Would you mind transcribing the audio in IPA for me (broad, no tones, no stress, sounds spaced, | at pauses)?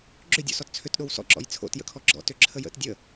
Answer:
ɡ͡ǁ ʏ dʲ o̰ s ɔ t t͡sʰ ʏ t ɗ o w s ɔ̰ ǁ ɔ̰ j t͡sʰ o̰ t j ə̰ kʰ ɔ ɡ͡ǁ ɔ̰ t ʏ ǁʰ ə j ə̰ t dʲ ə